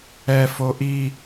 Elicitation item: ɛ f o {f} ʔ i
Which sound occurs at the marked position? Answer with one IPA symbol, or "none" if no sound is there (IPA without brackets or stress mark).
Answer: none